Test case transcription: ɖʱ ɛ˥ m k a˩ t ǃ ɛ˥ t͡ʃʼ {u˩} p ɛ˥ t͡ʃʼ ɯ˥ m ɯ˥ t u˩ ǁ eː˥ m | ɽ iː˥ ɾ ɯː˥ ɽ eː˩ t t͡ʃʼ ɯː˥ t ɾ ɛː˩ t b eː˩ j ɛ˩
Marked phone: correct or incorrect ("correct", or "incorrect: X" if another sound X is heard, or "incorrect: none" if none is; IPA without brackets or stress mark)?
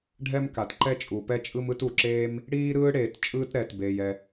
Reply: correct